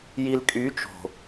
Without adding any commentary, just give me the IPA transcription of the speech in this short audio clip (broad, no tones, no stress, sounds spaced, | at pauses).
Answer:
j i l kʼ y t͡ʃ o̤